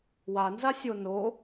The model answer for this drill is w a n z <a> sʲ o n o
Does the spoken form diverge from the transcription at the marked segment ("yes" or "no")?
no